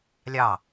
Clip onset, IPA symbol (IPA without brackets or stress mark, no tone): lʲ